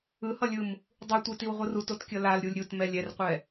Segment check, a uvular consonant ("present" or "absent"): present